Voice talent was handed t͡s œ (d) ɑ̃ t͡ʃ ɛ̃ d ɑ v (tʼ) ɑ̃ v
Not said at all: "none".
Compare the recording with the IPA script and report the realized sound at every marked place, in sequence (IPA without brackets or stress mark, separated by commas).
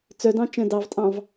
d, tʼ